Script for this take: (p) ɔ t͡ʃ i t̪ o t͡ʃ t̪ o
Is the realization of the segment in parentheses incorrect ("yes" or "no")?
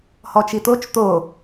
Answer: yes